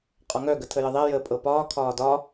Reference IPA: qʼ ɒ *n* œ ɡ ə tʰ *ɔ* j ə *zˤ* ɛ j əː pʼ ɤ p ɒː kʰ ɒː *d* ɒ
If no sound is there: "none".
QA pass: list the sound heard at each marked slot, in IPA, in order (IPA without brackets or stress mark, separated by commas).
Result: ŋ, ə, ðˤ, d